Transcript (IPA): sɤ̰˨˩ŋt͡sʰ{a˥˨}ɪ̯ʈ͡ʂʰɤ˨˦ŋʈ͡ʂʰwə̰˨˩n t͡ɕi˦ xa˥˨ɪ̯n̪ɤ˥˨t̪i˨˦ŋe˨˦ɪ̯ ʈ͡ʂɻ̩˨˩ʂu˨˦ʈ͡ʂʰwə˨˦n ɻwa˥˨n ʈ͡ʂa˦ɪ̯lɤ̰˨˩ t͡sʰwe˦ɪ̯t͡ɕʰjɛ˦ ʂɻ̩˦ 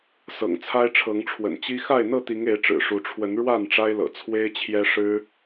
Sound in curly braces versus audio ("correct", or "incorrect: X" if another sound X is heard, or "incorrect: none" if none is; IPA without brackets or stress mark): incorrect: a˦